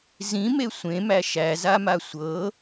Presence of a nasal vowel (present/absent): present